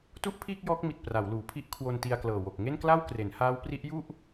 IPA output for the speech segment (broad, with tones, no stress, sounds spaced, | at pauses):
t u˥˩ ʔ pʰ iː˥˩ k̚ j ɔː˦˥ k̚ m i˨˩ t̚ p r a˩˦ w l uː˩˦ pʰ i˦˥ ʔ kʰ w o˧ n t i˧ a̯ k l ɤː˨˩ w o˨˩ k̚ ŋ e˥˩ n k l a˥˩ w k r e˩˦ n h aː˦˥ w p r i˦˥ ʔ j u˥˩ ʔ